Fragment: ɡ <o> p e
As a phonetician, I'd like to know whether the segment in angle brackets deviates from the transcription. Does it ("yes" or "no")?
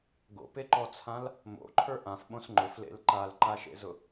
yes